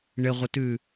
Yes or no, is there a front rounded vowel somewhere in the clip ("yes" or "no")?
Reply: no